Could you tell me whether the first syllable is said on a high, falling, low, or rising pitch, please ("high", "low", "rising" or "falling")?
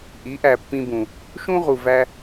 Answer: rising